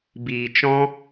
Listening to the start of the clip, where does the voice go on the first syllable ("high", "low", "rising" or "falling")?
low